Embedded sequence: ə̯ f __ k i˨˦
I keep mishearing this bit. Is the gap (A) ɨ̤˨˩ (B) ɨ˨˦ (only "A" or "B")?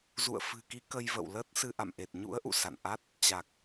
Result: A